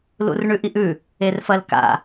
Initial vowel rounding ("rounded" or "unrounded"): rounded